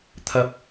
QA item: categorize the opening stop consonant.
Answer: aspirated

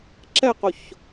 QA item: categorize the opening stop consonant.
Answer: click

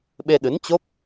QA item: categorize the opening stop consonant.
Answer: implosive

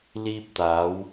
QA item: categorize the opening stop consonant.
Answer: plain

